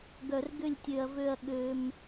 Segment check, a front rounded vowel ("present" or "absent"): present